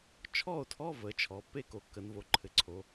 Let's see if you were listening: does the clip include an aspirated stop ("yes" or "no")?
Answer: yes